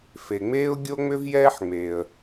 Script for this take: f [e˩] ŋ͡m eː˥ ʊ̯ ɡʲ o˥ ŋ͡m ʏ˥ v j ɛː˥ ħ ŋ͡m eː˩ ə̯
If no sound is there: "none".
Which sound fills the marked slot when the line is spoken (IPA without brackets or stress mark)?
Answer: e˩